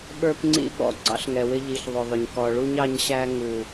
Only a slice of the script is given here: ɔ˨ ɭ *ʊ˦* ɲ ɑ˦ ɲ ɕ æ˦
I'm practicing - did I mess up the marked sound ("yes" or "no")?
yes